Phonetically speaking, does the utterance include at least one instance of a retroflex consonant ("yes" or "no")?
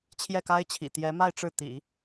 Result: yes